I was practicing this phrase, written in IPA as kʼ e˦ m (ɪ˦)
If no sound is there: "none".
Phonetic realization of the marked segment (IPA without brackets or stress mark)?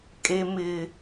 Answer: ɪ˦